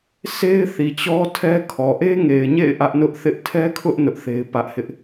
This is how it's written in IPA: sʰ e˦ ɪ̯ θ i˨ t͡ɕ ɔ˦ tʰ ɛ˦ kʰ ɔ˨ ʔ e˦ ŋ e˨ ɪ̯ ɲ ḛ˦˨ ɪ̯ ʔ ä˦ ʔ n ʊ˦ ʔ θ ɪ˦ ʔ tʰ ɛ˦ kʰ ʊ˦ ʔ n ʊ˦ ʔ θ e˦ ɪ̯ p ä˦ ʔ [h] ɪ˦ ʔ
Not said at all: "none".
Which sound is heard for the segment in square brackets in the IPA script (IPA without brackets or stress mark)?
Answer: h